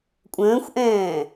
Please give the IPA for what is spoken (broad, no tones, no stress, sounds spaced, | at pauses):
kʷʼ ə̃ː xʷ ʔ ɛ̃ː